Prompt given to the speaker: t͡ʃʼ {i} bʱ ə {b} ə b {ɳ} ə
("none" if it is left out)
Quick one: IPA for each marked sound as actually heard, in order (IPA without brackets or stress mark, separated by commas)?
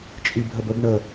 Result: i, b, ɳ